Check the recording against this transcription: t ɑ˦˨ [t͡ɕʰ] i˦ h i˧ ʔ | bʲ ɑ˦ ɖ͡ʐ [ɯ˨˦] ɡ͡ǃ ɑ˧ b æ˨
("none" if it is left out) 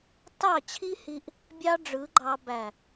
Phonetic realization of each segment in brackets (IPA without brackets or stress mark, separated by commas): t͡ɕʰ, ɯ˨˦